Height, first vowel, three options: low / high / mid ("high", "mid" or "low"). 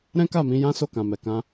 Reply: mid